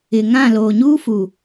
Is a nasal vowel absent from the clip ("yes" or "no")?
no